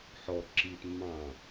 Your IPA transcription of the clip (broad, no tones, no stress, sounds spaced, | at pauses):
ħ ɔ ǁ i t mː ɑ̃